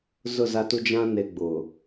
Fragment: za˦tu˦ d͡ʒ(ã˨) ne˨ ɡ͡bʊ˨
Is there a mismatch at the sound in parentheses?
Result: yes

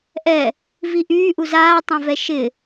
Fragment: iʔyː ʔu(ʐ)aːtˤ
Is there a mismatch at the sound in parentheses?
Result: yes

